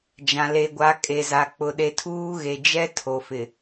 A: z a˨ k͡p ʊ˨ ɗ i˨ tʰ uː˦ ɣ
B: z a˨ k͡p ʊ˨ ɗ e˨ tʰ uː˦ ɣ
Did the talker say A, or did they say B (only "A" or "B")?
B